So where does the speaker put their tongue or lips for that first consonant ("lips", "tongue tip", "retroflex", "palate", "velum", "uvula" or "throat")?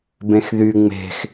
lips